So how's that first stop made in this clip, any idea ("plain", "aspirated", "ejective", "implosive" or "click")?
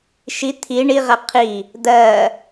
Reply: aspirated